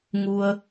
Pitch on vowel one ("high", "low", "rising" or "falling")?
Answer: low